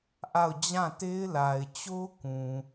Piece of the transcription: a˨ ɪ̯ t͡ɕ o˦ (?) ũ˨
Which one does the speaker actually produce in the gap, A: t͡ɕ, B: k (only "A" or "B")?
B